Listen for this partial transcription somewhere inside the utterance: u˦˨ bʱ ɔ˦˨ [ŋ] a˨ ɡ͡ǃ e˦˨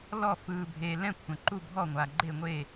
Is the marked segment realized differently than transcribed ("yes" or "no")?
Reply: yes